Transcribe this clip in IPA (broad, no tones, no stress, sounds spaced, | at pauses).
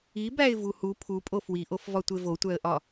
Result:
i b æ ɪ̯ v u h u pʰ u pʼ o f w i ʔ o f v ɒ tʷ e v o tʷ æ ə̯ ʔ ɒ